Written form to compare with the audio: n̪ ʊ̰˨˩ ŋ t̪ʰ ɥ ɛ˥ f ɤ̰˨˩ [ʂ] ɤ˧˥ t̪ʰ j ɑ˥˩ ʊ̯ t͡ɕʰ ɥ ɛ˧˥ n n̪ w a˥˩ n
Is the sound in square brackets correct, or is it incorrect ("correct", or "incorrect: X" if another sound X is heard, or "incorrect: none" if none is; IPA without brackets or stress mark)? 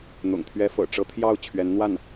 incorrect: ʈ͡ʂ